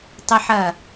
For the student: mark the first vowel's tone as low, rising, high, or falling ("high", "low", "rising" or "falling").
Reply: high